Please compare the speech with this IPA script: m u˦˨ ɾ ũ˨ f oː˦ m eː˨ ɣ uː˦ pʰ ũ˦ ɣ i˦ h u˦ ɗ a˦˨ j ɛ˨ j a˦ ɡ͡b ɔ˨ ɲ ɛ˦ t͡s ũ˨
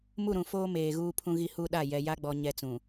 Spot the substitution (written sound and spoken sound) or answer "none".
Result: none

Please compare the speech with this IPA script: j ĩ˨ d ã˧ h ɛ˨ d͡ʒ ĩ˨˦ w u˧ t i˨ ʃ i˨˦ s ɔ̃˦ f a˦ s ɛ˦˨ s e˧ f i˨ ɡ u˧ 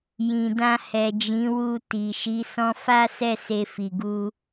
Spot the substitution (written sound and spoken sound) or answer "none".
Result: none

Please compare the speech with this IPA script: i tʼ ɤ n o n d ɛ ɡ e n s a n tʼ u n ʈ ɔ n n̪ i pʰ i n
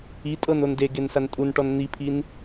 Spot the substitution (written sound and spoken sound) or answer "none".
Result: ɛ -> e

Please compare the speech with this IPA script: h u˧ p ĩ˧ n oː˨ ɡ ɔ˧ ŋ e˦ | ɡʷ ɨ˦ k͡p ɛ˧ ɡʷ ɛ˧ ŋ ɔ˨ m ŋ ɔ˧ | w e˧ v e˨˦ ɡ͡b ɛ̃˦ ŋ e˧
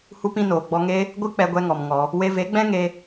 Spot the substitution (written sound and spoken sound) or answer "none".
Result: ɡ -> ɡ͡b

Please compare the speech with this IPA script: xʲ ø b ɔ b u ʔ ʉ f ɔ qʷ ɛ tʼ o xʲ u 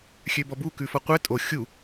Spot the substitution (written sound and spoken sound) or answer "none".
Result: ʔ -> k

